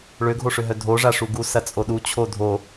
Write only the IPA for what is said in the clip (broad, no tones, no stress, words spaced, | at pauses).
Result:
ɭøɡʱoʂøɦœ dʱoʐa ʂuɡu sɐt͡sʼoɗu t͡ɕʰodʱo